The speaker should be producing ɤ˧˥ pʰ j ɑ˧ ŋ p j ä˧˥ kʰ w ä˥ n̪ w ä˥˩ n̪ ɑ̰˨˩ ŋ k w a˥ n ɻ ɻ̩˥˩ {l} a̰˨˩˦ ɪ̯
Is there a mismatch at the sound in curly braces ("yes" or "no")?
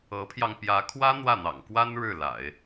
no